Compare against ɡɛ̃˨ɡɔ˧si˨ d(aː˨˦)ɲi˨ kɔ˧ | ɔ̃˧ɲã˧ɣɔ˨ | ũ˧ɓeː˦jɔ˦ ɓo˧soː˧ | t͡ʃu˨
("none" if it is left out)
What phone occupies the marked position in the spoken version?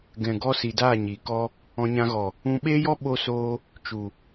aː˦˨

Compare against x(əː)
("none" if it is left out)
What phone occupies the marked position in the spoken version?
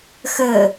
əː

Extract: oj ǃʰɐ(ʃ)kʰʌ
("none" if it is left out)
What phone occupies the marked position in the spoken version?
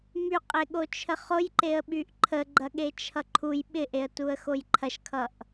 ʃ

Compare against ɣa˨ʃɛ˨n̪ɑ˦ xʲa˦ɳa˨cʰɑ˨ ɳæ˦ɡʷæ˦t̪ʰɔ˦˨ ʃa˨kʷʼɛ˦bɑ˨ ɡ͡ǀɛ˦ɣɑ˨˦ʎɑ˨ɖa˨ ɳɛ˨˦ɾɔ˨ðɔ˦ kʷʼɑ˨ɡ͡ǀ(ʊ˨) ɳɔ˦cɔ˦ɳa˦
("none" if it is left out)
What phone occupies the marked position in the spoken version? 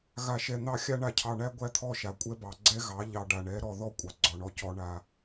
ɔ˨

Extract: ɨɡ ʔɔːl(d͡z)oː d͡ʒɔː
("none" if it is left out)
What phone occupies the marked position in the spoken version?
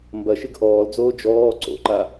d͡z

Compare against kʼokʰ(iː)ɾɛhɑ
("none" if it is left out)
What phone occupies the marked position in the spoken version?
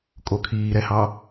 iː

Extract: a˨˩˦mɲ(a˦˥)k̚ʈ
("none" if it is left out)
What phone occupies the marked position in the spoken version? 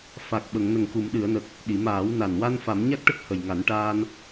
a˦˥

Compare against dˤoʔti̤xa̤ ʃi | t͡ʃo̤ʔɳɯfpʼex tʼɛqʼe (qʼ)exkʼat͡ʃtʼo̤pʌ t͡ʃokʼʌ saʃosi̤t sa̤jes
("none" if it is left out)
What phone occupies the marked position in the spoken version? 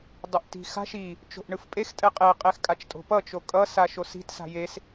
qʼ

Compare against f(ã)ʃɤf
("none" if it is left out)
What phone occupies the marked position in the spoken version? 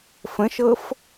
ə̃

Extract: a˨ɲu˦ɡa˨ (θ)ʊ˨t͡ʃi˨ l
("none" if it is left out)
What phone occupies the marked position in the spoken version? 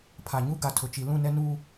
tʰ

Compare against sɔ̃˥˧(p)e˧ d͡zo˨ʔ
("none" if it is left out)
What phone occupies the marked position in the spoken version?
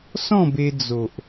b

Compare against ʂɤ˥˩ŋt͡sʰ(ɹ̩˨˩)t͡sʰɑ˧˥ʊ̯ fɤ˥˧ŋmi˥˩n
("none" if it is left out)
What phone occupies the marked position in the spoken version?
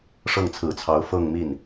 ɹ̩˨˩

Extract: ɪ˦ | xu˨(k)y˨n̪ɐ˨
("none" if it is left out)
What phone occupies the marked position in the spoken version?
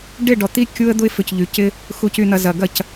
c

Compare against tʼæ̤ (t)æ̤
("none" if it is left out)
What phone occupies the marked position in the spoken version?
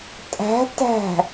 t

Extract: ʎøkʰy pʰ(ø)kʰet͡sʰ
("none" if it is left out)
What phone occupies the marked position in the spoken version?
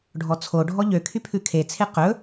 ʉ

